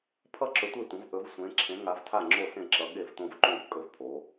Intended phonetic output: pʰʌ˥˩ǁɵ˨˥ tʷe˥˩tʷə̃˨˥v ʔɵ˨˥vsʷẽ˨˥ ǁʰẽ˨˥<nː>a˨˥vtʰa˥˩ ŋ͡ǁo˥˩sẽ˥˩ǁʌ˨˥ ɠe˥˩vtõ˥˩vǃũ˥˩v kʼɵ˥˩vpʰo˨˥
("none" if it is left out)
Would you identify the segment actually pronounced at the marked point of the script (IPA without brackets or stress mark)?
ŋ